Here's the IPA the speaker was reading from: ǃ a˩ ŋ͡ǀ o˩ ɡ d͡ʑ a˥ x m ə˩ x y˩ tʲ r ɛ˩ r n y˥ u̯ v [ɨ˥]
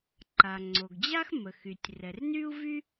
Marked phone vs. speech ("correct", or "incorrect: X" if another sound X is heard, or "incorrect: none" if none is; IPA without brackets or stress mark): incorrect: y˥